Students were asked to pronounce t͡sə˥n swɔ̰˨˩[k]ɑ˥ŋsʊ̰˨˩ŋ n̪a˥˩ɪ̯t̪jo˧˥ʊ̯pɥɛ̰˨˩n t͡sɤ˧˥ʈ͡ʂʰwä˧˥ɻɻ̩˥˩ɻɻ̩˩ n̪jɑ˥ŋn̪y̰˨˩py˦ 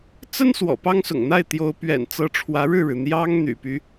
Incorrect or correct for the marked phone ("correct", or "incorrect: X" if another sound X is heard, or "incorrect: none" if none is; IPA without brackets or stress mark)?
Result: incorrect: p